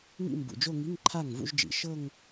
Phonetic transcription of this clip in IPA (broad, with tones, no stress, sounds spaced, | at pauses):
ŋ ḭ˥˧ m b ṵ˨˩ d͡ʒ o˥˧ ŋ i˧˥˧ ŋ ǃʰ a˥˩ ŋ v ṵ˥˧ ʒ d͡ʒ ḭ˨˩ ʃ ɤ˥˧ ŋ